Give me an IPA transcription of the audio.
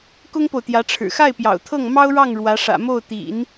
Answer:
k ʊ˥ ŋ p o˨ ʊ̯ t̪ j ä˧˥ ʈ͡ʂʰ ɻ̩˨˩ x a˥˩ ɪ̯ p j ɑ̰˨˩ ʊ̯ t̪ʰ ɤ˥˩ ŋ m ɑ˥ ʊ̯ ɻ ɑ˥˩ ŋ ɻ w ä˧˥ ʂ ä̰˨˩ m o˥˩ ʊ̯ t̪ ḭ˨˩˦ n

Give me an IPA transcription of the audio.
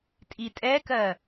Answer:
tʼ i tʼ ɛ k ɜ

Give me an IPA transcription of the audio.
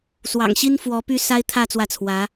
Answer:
s w ɑ̰˨˩ ŋ ɕ i˥ n f w ɔ˧˥ p y˥ s a˥ ɪ̯ t̪ʰ ä˥˧ t͡s w ä˥˩ t͡sʰ w ä˧˥

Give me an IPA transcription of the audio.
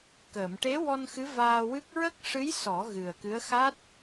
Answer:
k əː˨˩˨ m ʈ e˧˥ w ɔ˧ n x ɨ˧˥ v aː˧ w ɨ˦˥ k̚ ɹ ə˦˥ k̚ ʂ ɨ˧˥ j s ɔ˨˩˦ ɣ ɨ˨˩ ə̯ k ɨ˧˥ ə̯ x a˦˥ t̚

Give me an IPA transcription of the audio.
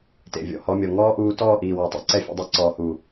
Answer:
t ḛ˨ vʲ ɔ̰˨ h ɔ˧ mʲ ɔ˨ ŋ ɔː˦ ʔ uː˧ t ɔː˦˨ ʔ iː˨ w ɔ˨ tˤ ḛ˧ ǀ ɛ˦ fʲ ṵ˧ dˤ ɛ˧ ǀ ɔː˨ h uː˨

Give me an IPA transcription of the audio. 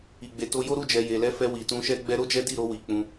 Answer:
i˨ ɡ͡b e˨ t o˧ j o˦ ɾ u˦˨ d͡ʒ ɛ˨ j e˨ l ɛ˧ f ɛ˧ w i˨ t ũ˧ ʃ ɛ˦ ɡ͡b ɛ˧ ɾ o˦ d͡ʒ ɛ˦ d i˦˨ ɾ o˧ w i˨ k͡p ũ˧

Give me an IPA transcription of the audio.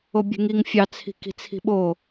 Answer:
o bʲ e̤ ŋ i ŋ fʲ ɑ t͡sʰ i̤ k i̤ t͡sʰ i̤ ɓ o

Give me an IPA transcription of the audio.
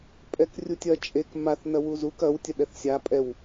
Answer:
pʼ ɛ k rʲ u tʲ ɐ t͡ʃʼ e k m a θ n ɐ w u z u k ɐ w tʲ ɐ ɗ ɛ θ sʲ a pʼ ɛ w

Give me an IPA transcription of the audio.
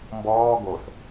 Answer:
m b ɔː ɡ o s

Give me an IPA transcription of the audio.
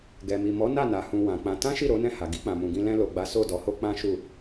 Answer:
ɡ ɛ˨ m i˨ m ɔ˨˦ n a˦˨ n a˨ h ũ˧ w ã˨ k͡p ã˧ t ã˦ ʃ i˦˨ ɾ o˨˦ n ɛ̃˦˨ h a˨ ɡ i˧ k͡p ã˨ m ũ˨ ɡ ĩ˧ l ɛ̃˧ l o˨ ɡ͡b a˨˦ s o˦˨ d ɔ˨˦ h o˦ k͡p ã˦ ʃ u˦˨

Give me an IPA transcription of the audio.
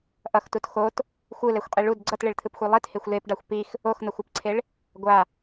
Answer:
ʔ ʌ x t u t x o t | xʷ ɯ l ɛ xʷ qʼ i ɭ u d ɡ͡ǀ ʌ t ɭ e ɭ t̪ʰ ɯ p xʷ e lˠ i t h e xʷ l e p ɖ a xʷ p i x | o x n̪ ʌ xʷ a p ǀʰ e ɭ | ɡʷ a

